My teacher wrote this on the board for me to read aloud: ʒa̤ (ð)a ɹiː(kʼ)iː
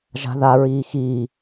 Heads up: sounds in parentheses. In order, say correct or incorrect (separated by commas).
correct, incorrect